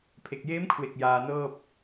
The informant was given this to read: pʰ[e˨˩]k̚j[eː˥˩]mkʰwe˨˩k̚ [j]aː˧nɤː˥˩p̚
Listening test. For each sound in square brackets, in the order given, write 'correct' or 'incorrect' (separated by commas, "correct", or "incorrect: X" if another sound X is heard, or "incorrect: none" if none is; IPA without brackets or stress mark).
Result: correct, incorrect: eː˦˥, correct